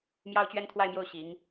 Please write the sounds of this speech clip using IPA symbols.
m j ɑ˥ ʊ̯ t͡ɕ ɥ ɛ˥ n t̪ʰ w a˥˧ ɪ̯ m j o˥˩ ʊ̯ ɕ i˧˥ ŋ

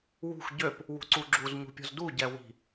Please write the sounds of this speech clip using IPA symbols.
w ṳ x ɟ ø p | w ṳ ǀ u ɡ͡ǁ u z ɲ ṳ pʲ ɔ̤ z d u ɟ ɛ w i̤

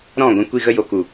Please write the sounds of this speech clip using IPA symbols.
ɾ ɔ̃˦˨ ɡʷ ɛ̃˧ kʷ i˦˨ ɣ ə˦ j o˨ k u˨

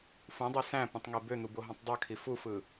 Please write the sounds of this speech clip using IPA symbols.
f ũ dˤ e s æ̃ p ũ tˤ ŋ e b ø n̪ u b o ɦ õ tˤ dˤ ɯ kʰ i f u f ɯ

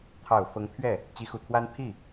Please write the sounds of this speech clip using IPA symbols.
t̪ʰ ɑ˨˩ ʊ̯ f ɤ˧˥ ŋ pʰ ɥ ɛ˥˩ | t͡ɕ i˧˥ x u˨˩ t̪ʰ w a˥ n pʰ i˥˩

